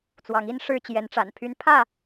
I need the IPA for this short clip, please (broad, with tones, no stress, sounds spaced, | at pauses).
t͡s w ɑ˨˦ ŋ i˦ n ʂ ɻ̩˥˨ t͡ɕ j ɛ˨˦ n ʈ͡ʂ a̰˨˩ n pʰ y˨˦ n pʰ ä˥˨